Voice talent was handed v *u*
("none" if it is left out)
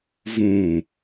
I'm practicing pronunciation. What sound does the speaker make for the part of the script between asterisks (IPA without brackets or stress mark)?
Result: ũ